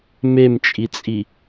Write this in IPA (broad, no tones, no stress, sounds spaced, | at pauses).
m e m t͡ʃʼ i t͡sʼ i